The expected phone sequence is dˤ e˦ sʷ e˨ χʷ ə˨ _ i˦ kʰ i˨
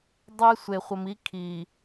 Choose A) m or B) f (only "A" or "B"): A